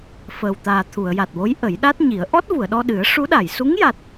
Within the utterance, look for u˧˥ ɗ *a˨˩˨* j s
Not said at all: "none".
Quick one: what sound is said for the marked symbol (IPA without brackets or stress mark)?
a˨˩˨